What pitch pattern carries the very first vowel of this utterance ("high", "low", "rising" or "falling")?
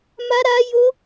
high